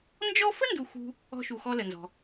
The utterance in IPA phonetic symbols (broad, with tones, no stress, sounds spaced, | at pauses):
n d͡ʒ ɔ˦ f ə˥ n d u˦ x ṳ˥ | ɔ̤˦ ʃ u˨ x ɔ˦ l ə˩ n z ɔ̤˨